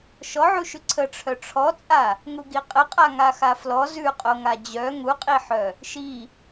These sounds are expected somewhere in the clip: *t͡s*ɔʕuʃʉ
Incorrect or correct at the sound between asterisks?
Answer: incorrect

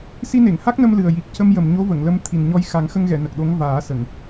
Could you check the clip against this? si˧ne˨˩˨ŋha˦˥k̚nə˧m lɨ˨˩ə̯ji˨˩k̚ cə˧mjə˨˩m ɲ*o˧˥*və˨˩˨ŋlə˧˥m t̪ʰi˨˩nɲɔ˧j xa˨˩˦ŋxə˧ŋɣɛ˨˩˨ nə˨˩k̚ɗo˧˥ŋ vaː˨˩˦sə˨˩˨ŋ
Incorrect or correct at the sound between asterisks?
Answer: correct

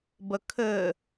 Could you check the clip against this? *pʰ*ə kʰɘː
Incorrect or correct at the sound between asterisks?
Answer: incorrect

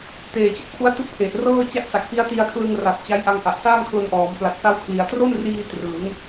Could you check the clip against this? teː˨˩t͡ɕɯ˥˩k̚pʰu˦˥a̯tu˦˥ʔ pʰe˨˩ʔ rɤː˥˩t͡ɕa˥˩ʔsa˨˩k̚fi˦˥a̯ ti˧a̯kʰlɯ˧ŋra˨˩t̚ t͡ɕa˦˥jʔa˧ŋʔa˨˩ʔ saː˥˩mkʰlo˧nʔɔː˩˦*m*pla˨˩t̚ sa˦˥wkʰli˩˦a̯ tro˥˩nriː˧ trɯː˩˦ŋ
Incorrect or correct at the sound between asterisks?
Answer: correct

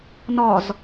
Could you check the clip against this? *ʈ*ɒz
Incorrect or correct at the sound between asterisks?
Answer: incorrect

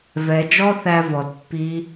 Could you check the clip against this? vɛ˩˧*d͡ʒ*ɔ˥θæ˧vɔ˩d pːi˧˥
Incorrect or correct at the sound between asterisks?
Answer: correct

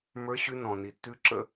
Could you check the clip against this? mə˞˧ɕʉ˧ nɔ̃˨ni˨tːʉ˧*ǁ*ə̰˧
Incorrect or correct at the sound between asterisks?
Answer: correct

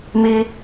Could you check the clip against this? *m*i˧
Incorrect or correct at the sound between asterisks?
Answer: correct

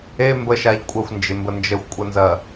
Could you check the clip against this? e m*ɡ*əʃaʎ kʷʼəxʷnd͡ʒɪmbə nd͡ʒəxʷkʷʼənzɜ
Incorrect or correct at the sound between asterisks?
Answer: incorrect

